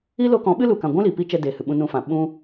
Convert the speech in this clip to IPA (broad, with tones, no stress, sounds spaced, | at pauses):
i˦ l o˧ k ɔ̃˨˦ ɓ ɨ˦ l u˨ k ã˨ ɡʷ ũ˦ l i˨ p i˦ t͡ʃ ɛ˧ d eː˨ h ɨ˨ ɓ ũ˧ n ũ˧ f ã˨ ɓ ũ˧